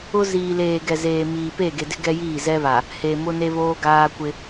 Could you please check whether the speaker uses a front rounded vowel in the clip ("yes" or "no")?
no